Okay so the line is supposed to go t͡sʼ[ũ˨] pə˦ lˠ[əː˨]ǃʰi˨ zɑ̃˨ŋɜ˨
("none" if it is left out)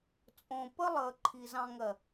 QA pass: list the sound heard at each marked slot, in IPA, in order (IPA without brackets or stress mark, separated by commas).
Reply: õ˨, əː˨